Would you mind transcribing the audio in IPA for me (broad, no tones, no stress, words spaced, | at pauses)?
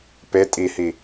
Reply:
pe tʼihi